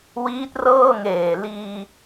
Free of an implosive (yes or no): yes